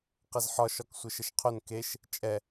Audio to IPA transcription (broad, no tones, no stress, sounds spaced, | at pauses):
q ɪ z ħ ɒ ʃ ɒ k sʷ ə ʃ ə ʃ qʰ ɵ n k e ʃ | t͡ʃʼ ɛ